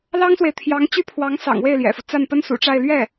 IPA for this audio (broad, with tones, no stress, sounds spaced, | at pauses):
l ɑ˥ ŋ s w e˨ ɪ̯ t̪ʰ j ɑ˧˥ ŋ t͡ɕ y˥˩ pʰ w ɑ˧˥ ŋ s ɑ̰˨˩ ŋ w e˥˩ ɪ̯ l j ɛ̰˨˩ f u˦ t͡s a˥˩ n p ə˥ n s ṵ˨˩ ʈ͡ʂ a˥˧ ɪ̯ l ɥ ɛ˥˩